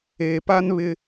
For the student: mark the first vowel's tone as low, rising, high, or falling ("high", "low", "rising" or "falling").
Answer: low